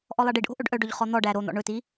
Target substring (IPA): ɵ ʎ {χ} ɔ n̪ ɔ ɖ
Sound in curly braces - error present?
no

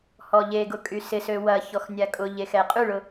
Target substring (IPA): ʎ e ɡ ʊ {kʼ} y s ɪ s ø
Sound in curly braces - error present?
no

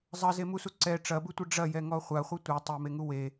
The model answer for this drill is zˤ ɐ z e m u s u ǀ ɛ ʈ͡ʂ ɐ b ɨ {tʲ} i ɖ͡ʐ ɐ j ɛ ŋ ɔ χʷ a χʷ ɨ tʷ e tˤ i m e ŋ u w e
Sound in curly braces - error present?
yes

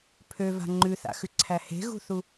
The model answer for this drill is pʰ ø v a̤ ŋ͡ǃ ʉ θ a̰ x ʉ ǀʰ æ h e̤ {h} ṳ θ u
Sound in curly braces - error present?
yes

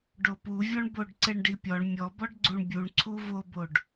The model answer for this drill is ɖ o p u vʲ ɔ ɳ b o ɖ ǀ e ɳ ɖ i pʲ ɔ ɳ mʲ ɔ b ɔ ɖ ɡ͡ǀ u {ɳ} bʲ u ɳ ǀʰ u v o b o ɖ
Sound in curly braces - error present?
no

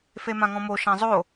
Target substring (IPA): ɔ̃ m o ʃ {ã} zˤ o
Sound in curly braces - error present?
no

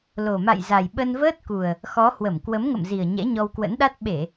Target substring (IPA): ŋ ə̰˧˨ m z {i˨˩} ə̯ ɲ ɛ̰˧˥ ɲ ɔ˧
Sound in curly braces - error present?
no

